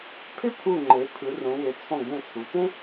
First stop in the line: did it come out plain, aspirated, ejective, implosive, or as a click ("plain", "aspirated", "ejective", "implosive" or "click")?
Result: aspirated